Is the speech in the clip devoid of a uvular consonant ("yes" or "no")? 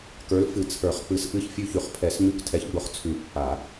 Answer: no